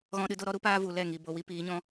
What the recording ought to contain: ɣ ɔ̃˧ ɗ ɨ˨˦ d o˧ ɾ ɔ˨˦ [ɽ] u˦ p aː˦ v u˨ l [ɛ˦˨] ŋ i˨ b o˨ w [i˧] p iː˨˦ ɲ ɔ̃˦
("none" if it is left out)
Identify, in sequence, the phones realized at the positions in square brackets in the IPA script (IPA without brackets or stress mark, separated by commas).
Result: ɾ, ɛ˦˨, i˧